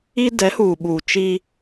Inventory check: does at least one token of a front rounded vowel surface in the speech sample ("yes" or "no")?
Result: no